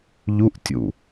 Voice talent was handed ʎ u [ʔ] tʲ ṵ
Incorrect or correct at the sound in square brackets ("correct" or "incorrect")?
correct